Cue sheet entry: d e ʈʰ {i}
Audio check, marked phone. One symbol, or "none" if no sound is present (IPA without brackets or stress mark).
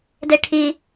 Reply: i